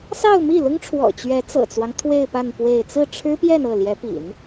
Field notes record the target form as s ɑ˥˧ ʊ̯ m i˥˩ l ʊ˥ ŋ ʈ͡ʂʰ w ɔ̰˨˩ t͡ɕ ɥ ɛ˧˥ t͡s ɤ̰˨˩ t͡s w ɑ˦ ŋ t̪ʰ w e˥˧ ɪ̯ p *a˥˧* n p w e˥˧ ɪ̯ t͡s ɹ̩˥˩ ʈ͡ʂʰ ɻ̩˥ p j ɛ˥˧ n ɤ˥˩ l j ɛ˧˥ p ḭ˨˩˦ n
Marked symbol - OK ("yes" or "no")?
yes